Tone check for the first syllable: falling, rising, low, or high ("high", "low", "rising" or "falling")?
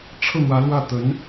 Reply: falling